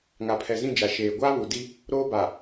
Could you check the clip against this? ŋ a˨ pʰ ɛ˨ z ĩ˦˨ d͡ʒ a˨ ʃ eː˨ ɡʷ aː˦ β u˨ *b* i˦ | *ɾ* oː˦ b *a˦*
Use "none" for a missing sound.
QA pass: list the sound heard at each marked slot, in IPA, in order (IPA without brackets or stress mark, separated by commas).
d, ɾ, a˨